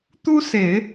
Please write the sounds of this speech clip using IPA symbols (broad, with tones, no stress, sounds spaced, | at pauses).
t̪ u˥ s e˨˩˦ ɪ̯